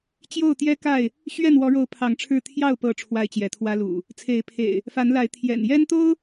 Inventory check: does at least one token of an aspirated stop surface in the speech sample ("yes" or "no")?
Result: yes